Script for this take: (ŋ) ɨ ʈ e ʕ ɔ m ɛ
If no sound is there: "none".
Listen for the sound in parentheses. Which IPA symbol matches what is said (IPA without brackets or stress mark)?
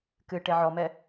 k